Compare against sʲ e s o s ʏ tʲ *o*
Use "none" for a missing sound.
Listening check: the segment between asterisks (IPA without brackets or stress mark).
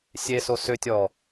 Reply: ɔ